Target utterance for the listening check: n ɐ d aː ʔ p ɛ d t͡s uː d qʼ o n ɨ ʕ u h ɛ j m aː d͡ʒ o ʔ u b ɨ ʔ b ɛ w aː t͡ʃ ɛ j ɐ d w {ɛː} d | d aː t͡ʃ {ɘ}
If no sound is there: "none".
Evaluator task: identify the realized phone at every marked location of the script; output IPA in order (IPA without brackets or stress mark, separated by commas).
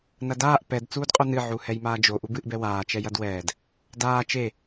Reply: ɛː, e